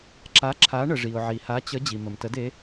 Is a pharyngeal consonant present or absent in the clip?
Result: present